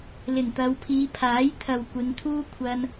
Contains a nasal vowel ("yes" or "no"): no